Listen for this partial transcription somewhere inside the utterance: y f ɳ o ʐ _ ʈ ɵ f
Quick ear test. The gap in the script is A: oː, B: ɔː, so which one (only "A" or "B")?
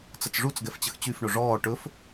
B